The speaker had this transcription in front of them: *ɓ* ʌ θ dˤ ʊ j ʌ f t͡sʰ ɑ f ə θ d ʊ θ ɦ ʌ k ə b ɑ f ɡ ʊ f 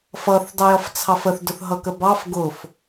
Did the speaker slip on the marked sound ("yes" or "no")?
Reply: yes